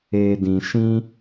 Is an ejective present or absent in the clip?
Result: absent